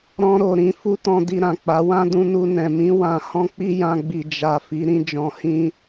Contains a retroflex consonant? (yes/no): no